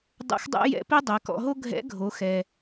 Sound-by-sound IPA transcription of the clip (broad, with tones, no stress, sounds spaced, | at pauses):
dˤ ṵ˧˥ x dˤ ɛ̰˥ j ɛ̰˧˥ p i˥ dˤ e˩˧ k ɔ̰˧ ɦ o˥ ɡʱ ɛ̰˧˥ ɡʱ o˩˧ x ɛ˩